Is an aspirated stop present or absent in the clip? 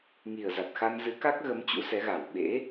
absent